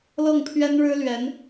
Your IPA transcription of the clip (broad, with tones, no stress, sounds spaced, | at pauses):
l ɤ˥˩ ŋ pʰ ɥ ɛ˥ n ɻ ɻ̩˥ l ɥ ɛ˧˥ n